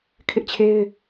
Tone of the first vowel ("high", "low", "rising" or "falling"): high